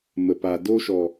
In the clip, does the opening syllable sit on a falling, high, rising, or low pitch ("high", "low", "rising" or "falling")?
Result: low